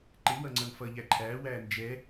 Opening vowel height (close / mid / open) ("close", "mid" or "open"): close